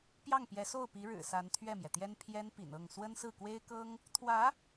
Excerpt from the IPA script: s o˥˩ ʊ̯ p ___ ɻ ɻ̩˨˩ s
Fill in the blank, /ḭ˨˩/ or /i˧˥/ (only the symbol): i˧˥